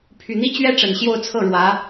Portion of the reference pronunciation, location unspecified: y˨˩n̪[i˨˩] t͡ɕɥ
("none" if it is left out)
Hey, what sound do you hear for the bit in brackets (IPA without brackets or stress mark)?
i˥